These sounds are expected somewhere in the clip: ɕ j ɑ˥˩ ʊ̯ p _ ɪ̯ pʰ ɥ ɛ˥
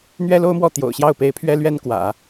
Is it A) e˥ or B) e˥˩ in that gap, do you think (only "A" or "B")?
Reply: A